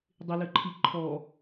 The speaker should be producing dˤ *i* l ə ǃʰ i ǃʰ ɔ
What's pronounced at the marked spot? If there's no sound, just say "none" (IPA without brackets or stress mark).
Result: ɪ